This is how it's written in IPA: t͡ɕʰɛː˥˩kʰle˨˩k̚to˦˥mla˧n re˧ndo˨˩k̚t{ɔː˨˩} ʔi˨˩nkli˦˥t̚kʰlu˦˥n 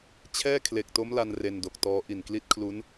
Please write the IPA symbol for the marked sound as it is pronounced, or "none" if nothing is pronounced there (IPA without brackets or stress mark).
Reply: ɔː˦˥